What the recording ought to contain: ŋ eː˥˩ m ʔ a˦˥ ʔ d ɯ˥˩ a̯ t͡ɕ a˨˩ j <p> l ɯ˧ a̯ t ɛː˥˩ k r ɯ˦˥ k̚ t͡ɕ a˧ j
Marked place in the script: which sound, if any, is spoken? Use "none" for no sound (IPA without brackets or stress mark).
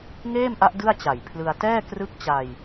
pʰ